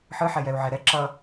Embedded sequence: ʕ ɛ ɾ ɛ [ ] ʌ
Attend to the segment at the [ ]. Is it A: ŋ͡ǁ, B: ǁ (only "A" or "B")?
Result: B